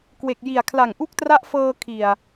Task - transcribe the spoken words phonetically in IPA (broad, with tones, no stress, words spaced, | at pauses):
kwe˨˩k̚ji˨˩a̯ kʰla˨˩ŋʔu˥˩k̚tra˦˥ʔfɤː˧ kʰi˨˩a̯